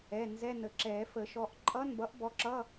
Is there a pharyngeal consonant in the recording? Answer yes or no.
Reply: no